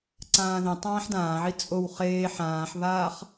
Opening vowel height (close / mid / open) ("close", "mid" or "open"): open